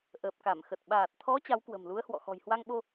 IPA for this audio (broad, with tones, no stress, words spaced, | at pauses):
ʔəː˨˩p̚ka˧˩mxə˨˩t̚ ɓaː˨˩t̚t̪ʰɔ˨˦ t͡ɕa˨˦wkwə̤˨˩mlu˨˦ə̯hwɔ̰˧˨ xɔ̤˨˩jhwa˧ŋɓo˧